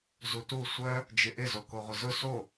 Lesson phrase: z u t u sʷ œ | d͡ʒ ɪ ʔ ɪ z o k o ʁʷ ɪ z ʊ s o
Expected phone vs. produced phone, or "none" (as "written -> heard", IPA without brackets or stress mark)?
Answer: none